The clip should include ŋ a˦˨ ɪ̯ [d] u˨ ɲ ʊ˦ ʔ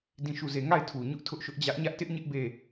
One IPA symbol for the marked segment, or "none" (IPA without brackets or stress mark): tʰ